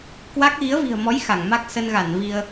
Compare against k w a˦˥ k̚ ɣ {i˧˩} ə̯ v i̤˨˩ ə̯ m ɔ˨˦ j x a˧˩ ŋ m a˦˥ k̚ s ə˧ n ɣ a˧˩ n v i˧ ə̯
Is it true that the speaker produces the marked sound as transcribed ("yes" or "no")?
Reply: no